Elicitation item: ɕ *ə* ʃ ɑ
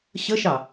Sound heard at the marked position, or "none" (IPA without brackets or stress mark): ə